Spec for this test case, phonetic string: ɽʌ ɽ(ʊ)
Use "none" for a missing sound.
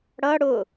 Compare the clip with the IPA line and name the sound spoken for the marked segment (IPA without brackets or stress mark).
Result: ʊ